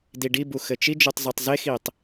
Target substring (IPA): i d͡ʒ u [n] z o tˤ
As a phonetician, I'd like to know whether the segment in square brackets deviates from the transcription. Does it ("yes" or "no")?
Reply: yes